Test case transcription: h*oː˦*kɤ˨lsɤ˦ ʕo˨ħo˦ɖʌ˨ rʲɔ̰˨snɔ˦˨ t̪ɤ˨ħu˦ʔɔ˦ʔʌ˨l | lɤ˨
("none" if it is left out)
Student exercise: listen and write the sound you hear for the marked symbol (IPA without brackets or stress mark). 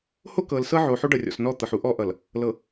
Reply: o˦